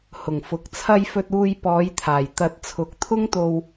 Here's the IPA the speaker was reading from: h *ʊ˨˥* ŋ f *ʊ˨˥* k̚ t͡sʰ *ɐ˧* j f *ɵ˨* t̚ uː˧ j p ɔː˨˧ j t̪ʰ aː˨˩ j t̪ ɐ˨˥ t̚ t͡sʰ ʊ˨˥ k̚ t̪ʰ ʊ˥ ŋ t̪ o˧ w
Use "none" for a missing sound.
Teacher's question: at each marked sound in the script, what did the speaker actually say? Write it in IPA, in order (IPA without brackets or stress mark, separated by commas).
ʊ˨˩, ʊ˨˥, ɐ˧, ɵ˧